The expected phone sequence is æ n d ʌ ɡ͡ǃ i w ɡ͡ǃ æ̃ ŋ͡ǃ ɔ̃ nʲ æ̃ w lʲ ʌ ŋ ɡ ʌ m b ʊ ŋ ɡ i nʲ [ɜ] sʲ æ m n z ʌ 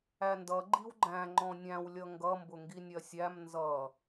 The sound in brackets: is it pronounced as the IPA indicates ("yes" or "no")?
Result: yes